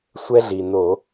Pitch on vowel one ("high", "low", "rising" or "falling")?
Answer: high